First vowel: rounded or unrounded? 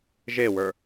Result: unrounded